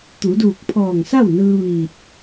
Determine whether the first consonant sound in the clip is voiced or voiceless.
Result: voiceless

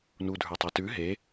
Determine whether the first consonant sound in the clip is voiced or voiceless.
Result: voiced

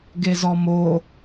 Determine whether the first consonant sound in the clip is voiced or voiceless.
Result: voiced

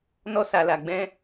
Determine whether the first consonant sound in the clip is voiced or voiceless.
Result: voiced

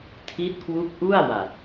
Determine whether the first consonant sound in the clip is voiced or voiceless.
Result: voiceless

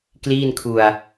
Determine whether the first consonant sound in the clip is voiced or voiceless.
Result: voiceless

